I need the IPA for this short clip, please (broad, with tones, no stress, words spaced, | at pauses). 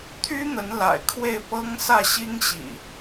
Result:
t̪ʰy˦ n̪ə˨˦nla̰˨˩ɪ̯kʰwe˥˨ɪ̯ pɤ˦ŋsä˥˨ ɕi˦ŋɕḭ˨˩